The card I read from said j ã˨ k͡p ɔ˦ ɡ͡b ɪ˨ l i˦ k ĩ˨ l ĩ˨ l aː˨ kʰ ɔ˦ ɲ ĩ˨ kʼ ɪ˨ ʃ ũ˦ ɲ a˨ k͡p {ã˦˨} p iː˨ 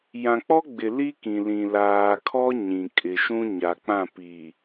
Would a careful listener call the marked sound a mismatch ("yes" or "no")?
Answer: no